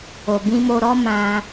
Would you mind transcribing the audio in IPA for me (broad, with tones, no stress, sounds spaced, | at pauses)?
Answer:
o˨ b ĩ˧ m o˧ ɾ ɔ˦ m ã˧